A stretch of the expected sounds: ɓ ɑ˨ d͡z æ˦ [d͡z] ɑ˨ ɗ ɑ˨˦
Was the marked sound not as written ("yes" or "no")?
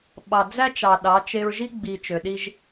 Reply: yes